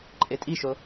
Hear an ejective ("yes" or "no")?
yes